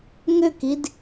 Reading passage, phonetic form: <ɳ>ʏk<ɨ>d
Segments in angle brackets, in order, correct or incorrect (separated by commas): incorrect, incorrect